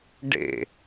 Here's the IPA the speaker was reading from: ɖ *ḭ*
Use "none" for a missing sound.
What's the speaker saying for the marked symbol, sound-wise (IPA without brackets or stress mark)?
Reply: ḛ